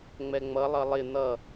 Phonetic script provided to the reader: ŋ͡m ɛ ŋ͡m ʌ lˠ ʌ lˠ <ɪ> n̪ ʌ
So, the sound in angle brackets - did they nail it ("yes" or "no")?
yes